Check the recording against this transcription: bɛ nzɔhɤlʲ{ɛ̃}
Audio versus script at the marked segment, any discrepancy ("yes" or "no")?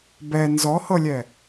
yes